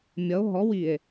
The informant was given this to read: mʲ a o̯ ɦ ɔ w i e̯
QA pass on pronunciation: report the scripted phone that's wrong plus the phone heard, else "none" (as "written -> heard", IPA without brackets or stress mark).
a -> ʌ